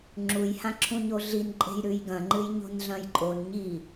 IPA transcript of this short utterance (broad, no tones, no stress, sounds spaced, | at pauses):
ŋ͡ǁ u j h ã ǁʰ ũ ɲ o ɮ i n ǃʼ e̤ j ɾ ʉ j ɡ ɐ̃ ŋ͡ǃ ɨ j ɲ o̤ n ɮ ɐ̃ j ǃʼ o n ɲ i